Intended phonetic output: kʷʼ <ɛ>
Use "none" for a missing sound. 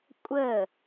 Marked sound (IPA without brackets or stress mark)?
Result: ə